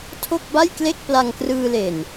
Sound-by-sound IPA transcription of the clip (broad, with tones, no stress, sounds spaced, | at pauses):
tʰ o˥˩ k̚ b a˥˩ j k l e˥˩ k̚ p l a˧ ŋ k r ɯː˧ l e˨˩ n